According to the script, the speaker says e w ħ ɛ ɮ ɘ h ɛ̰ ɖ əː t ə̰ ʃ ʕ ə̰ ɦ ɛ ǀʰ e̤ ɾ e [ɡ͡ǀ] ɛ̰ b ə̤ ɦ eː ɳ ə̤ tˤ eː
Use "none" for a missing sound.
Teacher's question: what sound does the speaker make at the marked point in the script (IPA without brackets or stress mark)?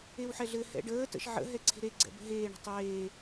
ɡ͡ǀ